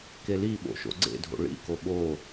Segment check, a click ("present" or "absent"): present